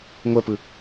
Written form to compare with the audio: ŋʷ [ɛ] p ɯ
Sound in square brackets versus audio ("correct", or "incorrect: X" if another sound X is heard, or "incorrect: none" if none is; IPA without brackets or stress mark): correct